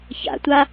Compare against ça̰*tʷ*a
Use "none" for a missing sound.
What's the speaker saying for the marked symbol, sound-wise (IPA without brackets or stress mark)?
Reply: tʷ